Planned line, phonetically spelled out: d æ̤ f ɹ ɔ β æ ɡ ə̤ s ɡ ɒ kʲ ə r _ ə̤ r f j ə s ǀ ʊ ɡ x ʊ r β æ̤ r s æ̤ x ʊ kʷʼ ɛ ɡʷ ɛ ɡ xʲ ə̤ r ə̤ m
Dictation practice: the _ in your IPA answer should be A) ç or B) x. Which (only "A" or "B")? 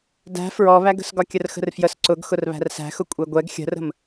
B